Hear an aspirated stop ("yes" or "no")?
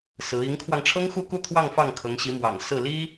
yes